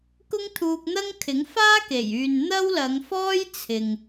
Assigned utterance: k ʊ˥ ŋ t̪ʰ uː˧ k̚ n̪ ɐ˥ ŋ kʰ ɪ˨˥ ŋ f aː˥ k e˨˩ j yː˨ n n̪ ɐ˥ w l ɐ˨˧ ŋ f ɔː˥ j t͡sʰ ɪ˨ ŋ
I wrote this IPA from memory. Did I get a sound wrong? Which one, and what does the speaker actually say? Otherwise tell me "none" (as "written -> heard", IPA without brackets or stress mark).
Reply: none